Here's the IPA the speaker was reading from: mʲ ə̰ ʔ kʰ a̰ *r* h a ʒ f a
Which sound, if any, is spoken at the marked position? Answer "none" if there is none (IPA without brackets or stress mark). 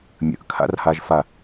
r